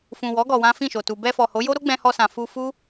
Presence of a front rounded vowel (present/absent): absent